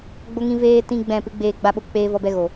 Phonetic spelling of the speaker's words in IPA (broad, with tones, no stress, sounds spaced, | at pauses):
ɡ͡b o˧ ŋ ĩ˧ v eː˧ t ĩ˦ ɡ͡b ɛ̃˦˨ p ɨ˨˦ ɡ͡b eː˧ ɡ͡b a˧ ɓ o˧ k͡p eː˧ v ɔ˧ b ɛ˧ ɣ o˨